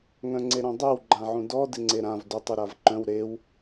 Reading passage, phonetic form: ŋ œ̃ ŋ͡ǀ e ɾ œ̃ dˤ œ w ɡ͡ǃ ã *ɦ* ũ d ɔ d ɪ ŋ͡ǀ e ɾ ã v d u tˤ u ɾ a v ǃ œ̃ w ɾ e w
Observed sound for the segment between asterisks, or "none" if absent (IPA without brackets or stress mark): ʕ